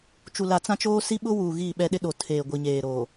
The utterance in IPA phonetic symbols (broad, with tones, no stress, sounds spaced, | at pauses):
t͡ʃ u˨ l a˨ t͡s ã˦ t͡ʃ oː˦ s i˦ ɓ ʊ˦ w uː˨ ɣ iː˦˨ ɓ ɛ˦ ɗ ɪ˦ ɗ o˨ tʰ eː˨ ɡʷ i˨ ɲ eː˨ ɾ oː˨